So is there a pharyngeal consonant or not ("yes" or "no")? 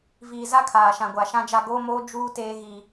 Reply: no